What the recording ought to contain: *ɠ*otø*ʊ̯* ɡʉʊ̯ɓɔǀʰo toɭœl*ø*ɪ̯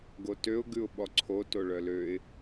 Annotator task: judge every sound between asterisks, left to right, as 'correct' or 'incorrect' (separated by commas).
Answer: incorrect, correct, correct